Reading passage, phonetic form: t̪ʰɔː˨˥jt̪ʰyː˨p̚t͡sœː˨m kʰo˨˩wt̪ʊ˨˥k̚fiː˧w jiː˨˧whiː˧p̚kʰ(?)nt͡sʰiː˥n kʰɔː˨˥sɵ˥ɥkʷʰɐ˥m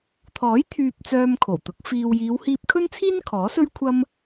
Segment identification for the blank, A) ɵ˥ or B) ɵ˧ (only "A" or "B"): A